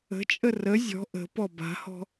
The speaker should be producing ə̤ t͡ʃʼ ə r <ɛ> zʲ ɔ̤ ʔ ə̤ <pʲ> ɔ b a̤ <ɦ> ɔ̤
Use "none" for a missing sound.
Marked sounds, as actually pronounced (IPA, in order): ə, p, h

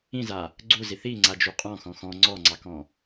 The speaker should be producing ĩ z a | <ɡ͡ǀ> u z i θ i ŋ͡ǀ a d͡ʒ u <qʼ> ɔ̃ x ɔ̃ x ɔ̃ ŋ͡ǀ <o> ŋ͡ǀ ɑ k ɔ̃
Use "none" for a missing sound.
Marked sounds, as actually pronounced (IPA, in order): ɡ͡ǀ, qʼ, ɔ

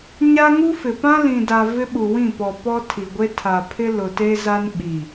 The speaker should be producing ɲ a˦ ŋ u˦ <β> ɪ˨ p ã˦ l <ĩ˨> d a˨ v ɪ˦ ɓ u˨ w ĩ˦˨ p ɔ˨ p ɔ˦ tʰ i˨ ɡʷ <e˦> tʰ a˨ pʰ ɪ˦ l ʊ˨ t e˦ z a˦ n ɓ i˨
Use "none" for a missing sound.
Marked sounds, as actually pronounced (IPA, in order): f, ĩ˨, e˦

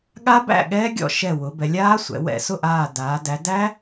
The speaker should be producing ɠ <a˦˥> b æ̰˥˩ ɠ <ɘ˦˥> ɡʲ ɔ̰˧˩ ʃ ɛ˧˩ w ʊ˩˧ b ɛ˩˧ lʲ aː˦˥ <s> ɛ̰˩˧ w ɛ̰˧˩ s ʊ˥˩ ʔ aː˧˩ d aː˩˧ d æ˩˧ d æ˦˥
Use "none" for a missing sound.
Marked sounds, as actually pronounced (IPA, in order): a˦˥, ɛ˦˥, sʷ

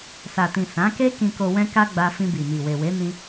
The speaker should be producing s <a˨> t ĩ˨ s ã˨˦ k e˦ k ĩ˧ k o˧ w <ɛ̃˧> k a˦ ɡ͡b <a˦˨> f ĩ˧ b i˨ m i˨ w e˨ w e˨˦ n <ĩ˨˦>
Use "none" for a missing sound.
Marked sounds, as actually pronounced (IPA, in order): a˨, ɛ̃˦, a˧, ĩ˦

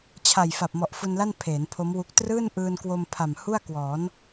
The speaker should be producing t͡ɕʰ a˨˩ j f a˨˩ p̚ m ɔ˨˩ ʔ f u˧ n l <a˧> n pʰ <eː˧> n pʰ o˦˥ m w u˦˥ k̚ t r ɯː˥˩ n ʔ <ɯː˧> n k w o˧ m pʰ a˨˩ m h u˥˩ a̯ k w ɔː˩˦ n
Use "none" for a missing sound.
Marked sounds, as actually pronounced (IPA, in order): a˥˩, eː˩˦, ɯː˧

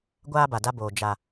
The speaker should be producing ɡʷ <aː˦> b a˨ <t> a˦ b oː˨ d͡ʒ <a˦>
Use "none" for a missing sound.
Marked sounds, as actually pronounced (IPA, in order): aː˦, d, a˨

